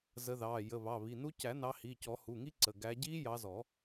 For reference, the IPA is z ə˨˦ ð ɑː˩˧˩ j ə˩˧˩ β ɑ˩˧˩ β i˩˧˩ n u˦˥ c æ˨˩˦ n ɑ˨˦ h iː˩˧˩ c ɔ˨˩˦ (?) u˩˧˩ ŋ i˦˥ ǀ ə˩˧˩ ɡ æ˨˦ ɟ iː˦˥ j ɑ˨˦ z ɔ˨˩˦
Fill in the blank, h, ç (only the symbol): h